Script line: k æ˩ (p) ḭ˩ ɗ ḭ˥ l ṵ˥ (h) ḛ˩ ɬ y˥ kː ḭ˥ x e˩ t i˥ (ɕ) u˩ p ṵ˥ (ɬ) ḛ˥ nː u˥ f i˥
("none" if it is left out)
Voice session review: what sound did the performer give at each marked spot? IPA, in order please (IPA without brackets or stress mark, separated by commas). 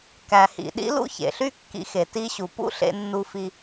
h, ç, ɕ, ɬ